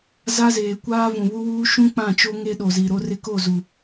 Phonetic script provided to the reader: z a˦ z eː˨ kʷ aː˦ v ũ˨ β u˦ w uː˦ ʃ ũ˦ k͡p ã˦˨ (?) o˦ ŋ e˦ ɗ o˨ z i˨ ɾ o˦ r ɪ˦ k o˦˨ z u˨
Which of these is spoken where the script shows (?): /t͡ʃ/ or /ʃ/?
t͡ʃ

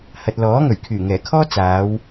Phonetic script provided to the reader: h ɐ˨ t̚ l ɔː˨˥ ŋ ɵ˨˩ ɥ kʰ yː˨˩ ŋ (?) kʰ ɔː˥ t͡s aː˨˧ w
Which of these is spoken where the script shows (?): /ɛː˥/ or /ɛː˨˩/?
ɛː˨˩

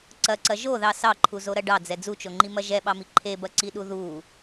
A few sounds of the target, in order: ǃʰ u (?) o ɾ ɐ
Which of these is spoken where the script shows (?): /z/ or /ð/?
z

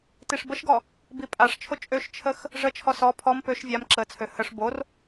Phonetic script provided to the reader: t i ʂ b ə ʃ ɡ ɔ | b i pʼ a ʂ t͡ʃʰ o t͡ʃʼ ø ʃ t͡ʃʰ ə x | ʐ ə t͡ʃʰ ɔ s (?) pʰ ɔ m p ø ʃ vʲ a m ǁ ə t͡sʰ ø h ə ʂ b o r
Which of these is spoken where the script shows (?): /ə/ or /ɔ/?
ɔ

